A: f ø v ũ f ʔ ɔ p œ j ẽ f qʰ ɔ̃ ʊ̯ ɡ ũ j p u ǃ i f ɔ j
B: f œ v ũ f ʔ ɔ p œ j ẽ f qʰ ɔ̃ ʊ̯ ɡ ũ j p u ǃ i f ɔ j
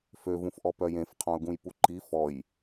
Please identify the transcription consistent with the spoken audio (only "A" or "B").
A